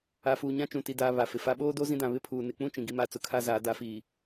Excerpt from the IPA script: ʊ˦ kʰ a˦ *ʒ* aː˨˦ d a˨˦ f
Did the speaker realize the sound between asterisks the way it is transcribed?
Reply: no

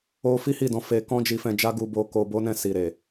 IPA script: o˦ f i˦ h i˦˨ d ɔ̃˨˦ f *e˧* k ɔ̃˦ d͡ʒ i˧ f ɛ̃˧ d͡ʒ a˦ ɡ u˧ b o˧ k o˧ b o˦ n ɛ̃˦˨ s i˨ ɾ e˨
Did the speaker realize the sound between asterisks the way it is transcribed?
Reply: yes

